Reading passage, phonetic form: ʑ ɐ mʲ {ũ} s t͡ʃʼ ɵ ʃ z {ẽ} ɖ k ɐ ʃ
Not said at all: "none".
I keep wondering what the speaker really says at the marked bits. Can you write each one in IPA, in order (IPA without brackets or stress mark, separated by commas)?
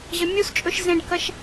u, ẽ